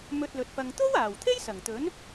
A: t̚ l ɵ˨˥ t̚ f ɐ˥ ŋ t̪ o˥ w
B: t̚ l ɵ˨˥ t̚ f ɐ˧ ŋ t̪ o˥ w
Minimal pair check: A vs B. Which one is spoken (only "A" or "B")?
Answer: B